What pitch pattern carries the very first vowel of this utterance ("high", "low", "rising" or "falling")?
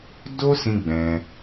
high